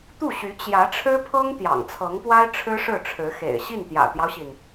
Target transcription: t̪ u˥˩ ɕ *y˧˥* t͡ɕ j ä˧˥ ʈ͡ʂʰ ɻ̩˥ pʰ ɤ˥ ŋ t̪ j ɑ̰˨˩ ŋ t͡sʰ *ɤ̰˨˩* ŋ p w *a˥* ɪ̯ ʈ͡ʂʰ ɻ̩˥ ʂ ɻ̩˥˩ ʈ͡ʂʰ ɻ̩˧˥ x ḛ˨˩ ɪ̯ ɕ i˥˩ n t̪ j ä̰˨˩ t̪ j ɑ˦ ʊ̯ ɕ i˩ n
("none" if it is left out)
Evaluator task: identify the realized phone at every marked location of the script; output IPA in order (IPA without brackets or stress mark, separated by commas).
y˧˥, ɤ˧˥, a˥